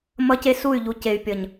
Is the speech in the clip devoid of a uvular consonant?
yes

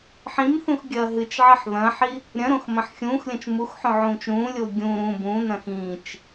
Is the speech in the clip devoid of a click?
yes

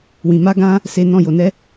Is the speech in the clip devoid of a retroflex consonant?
yes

